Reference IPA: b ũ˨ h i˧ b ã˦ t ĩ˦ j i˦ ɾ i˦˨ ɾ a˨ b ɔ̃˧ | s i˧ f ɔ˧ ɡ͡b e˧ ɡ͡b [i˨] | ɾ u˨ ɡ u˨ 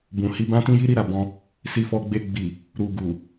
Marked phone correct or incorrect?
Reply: correct